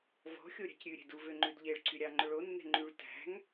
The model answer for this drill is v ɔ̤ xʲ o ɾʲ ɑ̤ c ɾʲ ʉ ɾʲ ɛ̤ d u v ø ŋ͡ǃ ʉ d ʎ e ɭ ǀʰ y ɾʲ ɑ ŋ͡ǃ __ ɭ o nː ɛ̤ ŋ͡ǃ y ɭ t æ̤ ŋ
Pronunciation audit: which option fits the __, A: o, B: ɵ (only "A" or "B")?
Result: B